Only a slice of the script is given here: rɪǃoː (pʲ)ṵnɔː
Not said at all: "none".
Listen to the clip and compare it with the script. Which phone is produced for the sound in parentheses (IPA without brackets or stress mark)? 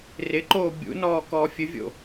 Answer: bʲ